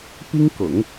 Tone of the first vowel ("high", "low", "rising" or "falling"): high